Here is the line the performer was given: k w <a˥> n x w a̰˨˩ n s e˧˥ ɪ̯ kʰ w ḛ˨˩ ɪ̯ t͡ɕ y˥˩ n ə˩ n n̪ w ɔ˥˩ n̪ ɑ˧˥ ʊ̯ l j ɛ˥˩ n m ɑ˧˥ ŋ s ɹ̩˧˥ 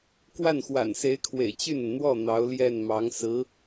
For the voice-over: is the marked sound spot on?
no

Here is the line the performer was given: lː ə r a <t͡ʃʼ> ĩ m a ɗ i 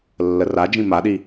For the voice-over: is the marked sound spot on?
no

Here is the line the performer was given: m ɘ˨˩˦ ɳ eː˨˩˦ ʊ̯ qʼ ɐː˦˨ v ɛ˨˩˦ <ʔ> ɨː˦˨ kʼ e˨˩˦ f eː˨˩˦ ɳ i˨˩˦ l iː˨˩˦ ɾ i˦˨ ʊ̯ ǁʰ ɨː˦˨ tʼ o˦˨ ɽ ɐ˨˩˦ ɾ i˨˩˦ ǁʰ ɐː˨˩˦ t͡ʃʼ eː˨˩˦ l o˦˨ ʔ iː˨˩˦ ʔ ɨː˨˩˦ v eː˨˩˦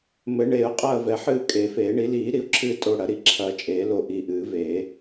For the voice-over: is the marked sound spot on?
no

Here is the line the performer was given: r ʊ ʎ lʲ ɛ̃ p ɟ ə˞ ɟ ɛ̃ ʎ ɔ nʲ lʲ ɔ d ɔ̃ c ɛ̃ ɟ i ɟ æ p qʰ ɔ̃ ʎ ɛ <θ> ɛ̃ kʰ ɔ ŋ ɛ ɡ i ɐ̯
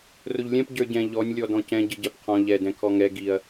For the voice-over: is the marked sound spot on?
no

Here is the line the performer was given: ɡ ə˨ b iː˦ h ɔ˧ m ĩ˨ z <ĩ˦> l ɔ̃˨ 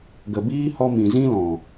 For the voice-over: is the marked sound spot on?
yes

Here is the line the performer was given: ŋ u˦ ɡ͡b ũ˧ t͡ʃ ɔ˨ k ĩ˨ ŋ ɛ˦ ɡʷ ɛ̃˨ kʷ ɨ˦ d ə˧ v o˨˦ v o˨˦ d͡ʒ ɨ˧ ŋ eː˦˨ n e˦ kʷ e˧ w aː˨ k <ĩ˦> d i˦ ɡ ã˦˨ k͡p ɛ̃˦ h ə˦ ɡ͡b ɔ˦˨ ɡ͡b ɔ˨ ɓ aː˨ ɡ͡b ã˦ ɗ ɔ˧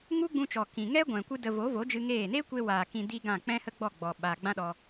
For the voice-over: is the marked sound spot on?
no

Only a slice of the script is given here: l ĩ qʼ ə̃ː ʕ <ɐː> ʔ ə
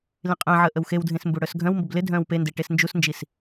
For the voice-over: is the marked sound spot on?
no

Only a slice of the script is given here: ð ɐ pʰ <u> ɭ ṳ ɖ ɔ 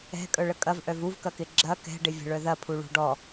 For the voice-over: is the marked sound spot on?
yes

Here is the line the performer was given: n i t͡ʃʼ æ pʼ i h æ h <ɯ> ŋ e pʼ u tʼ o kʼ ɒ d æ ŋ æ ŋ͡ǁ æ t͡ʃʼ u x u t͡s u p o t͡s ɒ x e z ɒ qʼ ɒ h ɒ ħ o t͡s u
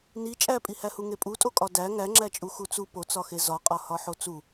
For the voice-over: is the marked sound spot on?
no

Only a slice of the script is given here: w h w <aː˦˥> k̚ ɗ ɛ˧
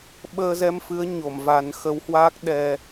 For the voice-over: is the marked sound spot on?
yes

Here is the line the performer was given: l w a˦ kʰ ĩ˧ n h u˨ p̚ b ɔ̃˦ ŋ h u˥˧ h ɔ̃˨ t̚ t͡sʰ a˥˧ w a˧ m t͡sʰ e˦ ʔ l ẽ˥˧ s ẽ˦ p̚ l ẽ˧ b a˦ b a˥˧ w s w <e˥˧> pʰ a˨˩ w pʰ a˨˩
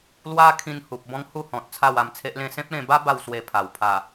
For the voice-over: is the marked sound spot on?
no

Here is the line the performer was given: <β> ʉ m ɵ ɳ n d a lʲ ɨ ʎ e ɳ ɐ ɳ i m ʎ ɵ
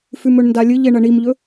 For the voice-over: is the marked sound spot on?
no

